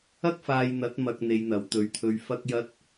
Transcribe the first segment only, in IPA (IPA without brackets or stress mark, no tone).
ɐ